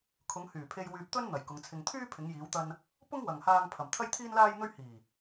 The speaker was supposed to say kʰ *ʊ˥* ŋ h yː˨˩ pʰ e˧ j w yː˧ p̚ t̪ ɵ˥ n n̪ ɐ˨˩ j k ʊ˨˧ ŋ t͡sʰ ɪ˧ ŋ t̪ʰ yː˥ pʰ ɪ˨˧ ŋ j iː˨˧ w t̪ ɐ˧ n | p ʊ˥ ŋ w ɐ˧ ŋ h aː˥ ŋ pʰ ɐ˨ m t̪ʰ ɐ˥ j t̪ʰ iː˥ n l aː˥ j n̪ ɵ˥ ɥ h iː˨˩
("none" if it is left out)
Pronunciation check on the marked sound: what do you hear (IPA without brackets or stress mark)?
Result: ʊ˨˧